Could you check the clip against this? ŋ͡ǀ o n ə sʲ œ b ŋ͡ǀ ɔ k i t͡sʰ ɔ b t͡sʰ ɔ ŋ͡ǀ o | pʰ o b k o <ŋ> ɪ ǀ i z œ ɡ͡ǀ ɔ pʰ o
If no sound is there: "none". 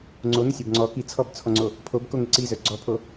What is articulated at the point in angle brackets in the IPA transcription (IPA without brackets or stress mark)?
ŋ